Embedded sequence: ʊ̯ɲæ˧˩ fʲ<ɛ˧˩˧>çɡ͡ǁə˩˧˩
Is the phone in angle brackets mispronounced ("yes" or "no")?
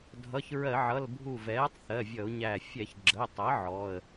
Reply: no